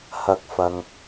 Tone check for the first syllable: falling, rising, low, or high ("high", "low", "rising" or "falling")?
rising